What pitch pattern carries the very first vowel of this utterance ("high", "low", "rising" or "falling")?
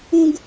high